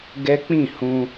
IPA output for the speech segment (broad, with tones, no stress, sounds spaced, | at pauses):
ɡ ɛ˦ k͡p ĩ˦˨ h ũ˧